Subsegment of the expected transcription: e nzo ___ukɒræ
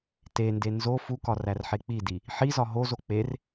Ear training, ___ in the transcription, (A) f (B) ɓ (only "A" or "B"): A